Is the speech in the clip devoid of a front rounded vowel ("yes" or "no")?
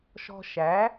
yes